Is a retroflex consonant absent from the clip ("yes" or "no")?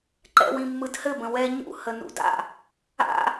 yes